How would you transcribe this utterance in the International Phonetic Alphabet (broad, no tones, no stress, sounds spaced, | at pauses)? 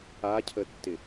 a cʰ ə tː ɪ